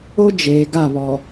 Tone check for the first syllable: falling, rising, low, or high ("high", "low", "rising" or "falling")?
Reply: high